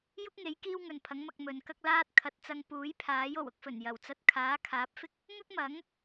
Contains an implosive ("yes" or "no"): no